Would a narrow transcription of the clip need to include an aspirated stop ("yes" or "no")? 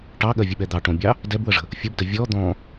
no